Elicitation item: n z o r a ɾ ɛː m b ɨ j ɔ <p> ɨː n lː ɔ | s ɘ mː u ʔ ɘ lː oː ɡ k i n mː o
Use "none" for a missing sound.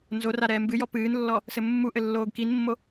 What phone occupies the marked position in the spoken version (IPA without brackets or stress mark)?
p